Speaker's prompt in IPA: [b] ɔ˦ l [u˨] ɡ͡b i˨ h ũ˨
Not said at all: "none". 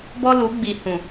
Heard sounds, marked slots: b, u˨˦

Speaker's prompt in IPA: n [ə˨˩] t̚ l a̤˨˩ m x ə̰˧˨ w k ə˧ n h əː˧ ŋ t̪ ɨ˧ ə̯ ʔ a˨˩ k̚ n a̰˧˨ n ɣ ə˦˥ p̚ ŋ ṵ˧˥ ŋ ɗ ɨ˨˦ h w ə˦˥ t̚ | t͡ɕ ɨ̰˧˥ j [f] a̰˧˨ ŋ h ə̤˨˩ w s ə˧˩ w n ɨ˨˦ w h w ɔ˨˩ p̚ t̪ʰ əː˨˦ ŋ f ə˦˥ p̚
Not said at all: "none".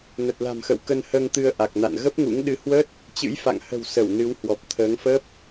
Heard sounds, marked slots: ə˨˩, f

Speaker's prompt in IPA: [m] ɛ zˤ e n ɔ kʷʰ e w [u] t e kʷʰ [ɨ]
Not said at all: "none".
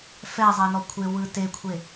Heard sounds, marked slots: f, ɯ, e

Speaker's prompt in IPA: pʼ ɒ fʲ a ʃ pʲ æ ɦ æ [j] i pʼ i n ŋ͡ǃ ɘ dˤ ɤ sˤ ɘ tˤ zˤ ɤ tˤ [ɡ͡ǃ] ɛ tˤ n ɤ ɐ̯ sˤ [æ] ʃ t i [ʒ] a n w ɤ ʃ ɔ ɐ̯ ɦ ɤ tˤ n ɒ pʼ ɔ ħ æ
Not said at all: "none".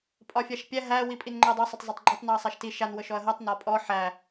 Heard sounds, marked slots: w, ɡ͡ǃ, æ, ʃ

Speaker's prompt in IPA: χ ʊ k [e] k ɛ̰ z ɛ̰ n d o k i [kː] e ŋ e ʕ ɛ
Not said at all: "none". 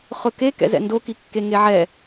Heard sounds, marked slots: e, kː

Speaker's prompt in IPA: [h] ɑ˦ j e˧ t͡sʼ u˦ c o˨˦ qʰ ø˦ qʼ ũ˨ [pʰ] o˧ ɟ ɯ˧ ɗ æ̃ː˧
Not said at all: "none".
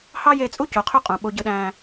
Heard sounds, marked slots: h, ɓ

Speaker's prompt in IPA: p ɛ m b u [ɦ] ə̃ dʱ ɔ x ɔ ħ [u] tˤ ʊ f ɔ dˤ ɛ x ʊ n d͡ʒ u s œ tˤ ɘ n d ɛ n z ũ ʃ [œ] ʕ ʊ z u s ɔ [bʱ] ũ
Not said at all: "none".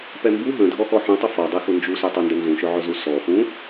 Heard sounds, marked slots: ɦ, ũ, œ, f

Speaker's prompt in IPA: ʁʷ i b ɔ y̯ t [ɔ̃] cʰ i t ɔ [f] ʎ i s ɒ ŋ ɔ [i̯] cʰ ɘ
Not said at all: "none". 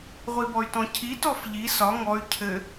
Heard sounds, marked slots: ɔ̃, f, y̯

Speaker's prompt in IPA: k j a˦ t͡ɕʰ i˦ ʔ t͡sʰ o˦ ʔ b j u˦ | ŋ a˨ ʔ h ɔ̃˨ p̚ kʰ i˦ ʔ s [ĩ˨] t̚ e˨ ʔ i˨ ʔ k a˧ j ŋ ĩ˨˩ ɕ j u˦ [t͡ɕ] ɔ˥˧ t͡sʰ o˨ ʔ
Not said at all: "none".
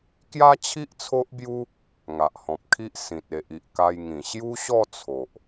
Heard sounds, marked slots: ĩ˨, ɕ

